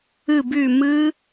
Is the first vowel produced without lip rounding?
yes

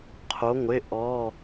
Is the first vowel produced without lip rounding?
no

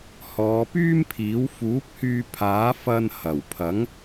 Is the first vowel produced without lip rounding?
no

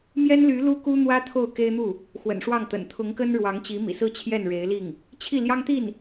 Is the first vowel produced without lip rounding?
yes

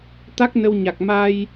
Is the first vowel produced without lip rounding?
yes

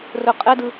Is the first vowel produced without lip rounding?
no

